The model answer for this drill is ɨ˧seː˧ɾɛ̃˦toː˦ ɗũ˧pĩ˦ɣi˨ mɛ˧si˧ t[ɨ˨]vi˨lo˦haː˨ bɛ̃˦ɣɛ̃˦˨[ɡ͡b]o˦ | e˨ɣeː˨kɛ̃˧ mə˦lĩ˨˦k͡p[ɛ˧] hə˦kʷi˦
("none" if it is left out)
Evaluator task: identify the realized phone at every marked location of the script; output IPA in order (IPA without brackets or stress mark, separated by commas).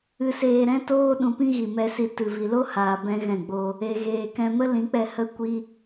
ɨ˨, ɡ͡b, ɛ˧